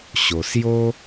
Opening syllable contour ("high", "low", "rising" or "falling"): low